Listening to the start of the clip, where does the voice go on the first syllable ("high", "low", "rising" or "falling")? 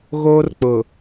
high